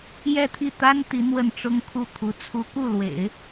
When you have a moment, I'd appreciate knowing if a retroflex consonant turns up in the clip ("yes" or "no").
yes